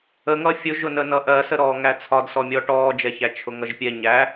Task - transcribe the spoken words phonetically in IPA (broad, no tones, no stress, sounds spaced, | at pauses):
ə ŋ ʌ fʲ ʊ ʒ ʊ n ə n ʌ ʔ ɜ s ə ɾ ɔː ŋ æ t͡sʰ ɒ d s ɔ mʲ ɔ ʈ ɔː d͡ʒ ɛ ç æ t͡ʃʰ ʊ ŋ ʌ ʒ pʲ ɛ ɲ æ